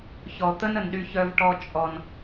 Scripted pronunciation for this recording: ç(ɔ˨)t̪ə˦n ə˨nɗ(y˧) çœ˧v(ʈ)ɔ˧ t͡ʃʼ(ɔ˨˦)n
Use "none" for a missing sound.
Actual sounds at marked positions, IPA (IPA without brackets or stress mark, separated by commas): ɔ˨, y˧, ʈ, ɔ˨